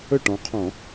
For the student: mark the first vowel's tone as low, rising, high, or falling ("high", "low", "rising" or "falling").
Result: falling